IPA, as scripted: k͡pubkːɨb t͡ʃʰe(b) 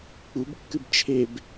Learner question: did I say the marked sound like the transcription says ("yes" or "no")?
yes